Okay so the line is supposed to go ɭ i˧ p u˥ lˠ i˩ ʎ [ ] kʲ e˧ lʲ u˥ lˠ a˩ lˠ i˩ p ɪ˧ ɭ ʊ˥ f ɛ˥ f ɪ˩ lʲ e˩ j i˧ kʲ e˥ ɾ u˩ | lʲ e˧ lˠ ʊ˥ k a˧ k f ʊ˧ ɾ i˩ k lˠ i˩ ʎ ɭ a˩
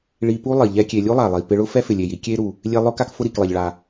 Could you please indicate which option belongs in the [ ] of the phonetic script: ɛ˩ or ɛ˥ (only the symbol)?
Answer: ɛ˥